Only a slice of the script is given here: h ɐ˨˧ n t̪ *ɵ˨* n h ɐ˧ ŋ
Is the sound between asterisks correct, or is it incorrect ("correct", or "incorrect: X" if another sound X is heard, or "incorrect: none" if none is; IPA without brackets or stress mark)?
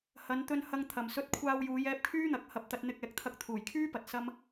incorrect: ɵ˧